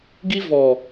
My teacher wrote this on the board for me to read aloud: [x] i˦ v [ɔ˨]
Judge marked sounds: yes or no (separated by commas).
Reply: no, yes